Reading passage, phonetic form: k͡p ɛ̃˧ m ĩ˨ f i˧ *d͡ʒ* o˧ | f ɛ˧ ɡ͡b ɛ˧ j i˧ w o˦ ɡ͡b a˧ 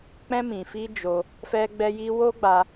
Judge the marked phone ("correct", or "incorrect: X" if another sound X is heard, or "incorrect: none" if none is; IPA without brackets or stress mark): correct